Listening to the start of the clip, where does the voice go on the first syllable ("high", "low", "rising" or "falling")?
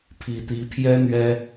low